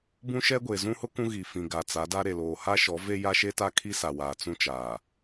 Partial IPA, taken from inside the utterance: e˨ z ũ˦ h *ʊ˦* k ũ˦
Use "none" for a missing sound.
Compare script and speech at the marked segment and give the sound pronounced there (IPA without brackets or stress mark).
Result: ʊ˦